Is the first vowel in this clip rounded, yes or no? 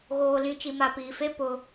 yes